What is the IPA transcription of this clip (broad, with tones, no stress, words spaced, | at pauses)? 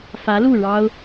fä˧˥lu˥˩ ɻɑ˥ʊ̯